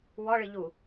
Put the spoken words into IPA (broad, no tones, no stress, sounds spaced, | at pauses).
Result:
w ɔ ɭ ɨ ʎ u